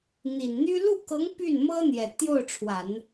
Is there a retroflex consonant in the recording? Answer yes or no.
yes